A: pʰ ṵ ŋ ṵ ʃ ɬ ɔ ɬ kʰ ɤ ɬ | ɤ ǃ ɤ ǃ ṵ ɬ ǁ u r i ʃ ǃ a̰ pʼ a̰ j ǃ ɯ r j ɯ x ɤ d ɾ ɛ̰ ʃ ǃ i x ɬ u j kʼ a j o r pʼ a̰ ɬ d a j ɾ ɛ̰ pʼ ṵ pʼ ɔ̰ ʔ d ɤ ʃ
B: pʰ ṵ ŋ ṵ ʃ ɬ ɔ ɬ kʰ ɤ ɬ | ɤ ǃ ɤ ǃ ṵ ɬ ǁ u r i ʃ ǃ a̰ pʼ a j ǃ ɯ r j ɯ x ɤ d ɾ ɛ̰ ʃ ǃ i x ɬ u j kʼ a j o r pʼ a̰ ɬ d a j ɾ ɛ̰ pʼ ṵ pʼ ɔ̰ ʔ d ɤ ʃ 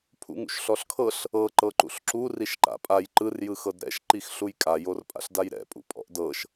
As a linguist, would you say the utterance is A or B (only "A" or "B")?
B